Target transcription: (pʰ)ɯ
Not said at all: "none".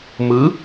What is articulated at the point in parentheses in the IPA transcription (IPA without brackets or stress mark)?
m